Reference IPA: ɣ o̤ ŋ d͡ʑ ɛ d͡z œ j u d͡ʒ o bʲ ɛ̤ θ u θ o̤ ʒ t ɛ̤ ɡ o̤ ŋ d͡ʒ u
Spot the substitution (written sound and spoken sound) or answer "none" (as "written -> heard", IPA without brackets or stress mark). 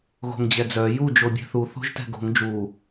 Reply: none